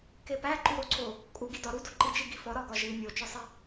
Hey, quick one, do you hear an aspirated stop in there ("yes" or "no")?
no